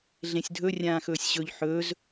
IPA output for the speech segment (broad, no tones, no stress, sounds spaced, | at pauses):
ɮ ẽ sʲ dʱ ɵ rʲ ãː x ɵː sʲ ɕ ɵ ʎ ħ ɵː z